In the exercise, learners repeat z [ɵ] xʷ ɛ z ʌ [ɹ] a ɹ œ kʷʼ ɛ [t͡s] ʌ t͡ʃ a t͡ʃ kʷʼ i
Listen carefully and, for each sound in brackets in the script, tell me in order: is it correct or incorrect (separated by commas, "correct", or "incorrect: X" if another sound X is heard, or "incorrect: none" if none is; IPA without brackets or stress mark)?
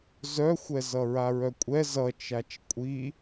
incorrect: œ, correct, incorrect: z